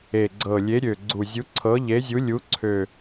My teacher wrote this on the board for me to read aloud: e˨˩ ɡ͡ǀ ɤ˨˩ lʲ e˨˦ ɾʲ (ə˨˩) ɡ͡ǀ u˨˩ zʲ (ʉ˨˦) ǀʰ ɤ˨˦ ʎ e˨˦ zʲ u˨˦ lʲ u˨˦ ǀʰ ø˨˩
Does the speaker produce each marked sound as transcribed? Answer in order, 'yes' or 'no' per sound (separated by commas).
no, no